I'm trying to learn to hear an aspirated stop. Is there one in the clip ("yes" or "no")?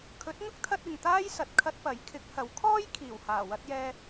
yes